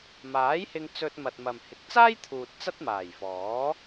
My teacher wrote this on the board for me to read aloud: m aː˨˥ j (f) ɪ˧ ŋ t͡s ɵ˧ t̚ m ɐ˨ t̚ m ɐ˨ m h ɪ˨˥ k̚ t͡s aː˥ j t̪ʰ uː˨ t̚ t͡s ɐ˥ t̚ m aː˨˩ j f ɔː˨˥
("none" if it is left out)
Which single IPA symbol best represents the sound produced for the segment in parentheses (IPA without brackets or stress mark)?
h